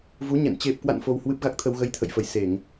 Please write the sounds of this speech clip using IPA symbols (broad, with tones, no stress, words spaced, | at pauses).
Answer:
vu˨˦ɲɛ̰˧˨n t͡ɕe˨˩p̚kwa̰˧˨n fo˧whwɨ˦˥p̚ɣa˦˥k̚t̪ʰə˧w ɣə˧jt̪ʰə̰˧˨jfə˧˩jse˧˩˨ŋ